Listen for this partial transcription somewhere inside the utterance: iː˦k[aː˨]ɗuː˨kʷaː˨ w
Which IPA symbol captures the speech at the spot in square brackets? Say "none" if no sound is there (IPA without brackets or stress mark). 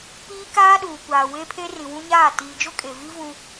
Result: aː˦